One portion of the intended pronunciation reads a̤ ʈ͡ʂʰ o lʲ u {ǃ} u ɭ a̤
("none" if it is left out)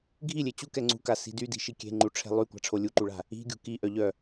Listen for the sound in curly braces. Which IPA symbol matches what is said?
ǃ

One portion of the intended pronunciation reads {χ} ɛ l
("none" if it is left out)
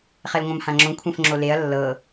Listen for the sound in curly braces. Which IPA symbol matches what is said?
χ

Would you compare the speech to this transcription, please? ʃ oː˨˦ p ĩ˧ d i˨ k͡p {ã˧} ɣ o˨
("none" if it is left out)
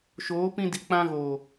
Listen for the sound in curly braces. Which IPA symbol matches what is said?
ã˧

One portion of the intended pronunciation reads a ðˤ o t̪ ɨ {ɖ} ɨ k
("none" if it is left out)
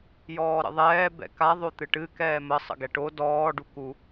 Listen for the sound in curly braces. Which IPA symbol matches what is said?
ʈ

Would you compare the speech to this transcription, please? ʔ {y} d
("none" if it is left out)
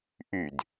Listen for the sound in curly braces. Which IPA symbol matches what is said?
y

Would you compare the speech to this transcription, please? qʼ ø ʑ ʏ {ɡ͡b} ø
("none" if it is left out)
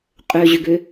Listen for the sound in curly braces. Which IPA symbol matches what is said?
ɡ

